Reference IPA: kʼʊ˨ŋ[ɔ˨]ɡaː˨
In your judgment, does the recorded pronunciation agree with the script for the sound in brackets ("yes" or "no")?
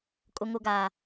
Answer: no